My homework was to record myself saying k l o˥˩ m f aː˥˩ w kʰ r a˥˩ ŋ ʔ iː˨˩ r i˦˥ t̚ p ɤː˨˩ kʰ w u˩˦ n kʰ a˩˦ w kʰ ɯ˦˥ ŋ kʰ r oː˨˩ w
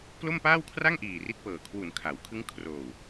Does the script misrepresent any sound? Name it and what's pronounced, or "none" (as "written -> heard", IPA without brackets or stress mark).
f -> p